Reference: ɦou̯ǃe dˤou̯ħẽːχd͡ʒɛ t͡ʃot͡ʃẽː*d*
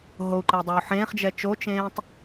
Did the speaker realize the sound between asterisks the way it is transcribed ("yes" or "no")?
no